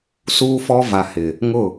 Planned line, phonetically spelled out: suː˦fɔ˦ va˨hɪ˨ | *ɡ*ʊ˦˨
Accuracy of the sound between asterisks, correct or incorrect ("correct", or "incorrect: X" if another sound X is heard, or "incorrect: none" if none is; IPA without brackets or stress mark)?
incorrect: ŋ